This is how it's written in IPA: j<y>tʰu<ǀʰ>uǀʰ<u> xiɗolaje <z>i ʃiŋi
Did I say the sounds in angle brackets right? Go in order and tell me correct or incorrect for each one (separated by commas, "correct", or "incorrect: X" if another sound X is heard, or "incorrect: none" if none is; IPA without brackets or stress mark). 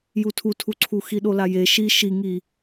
incorrect: u, incorrect: tʰ, correct, incorrect: ʃ